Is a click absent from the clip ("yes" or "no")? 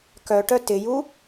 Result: yes